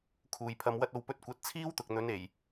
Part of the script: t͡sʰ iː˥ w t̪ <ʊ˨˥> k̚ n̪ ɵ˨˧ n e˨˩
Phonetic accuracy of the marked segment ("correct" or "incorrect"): incorrect